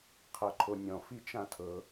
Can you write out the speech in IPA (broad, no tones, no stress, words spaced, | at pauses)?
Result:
qʰɤǃʰonʲɔ̃ fit͡ʃãtʰɤ